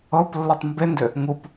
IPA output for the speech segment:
ɤ p lː o tˤ m b e n d ʏ | ŋ u p

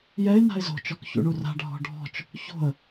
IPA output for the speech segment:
j ɛ ɪ̯ n a̤ ɪ̯ z o̤ t͡ʃ ɔ k ç ṵ ɳ u r a̤ ɖʱ ɔ̤ ɖʱ ɔ̤ t͡ʃ | ç o̤ ə̯

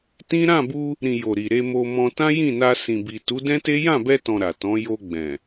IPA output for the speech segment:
t ĩ˦ ɾ ã˦˨ b u˧ | ɾ ĩ˨ j o˨ ɾ i˨ ɾ e˧ m o˧ m ɔ̃˧ t ã˦ j ĩ˦˨ n a˧ s ĩ˨ b i˨ t u˨˦ d ɛ̃˦ t e˦ j ã˦˨ b ɛ˧ t ɔ̃˨ ɾ a˨ t ɔ̃˨˦ j o˧ ɡ͡b ɛ̃˨

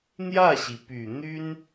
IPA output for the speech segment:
n̪ j ä˥˩ ɕ i˩ p y˨˩ n̪ y˥ n

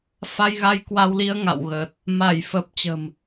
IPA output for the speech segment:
f a˧ j ɣ a˧ j k w a˧ w l i˧ ə̯ ŋ a̰˧˨ w ɣ ə˨˩ t̚ | m a˧˩ j f ə˨˩ p̚ t͡ɕ ə̤˨˩ m

